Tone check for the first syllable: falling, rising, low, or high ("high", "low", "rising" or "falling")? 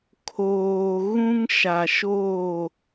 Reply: low